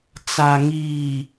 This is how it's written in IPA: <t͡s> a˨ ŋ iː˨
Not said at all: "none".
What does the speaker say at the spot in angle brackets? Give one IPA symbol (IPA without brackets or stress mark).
t͡s